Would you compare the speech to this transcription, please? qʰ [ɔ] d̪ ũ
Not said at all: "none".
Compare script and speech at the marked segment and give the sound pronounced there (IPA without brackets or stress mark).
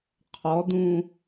ɔ